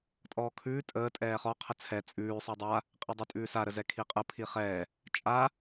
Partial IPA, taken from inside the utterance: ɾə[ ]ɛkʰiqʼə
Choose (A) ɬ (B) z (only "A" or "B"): B